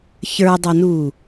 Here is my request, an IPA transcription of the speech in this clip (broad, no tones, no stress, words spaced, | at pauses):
çə˞dˤɐnu